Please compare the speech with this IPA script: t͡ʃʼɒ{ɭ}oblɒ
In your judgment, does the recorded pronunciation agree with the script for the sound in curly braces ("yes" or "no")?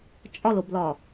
no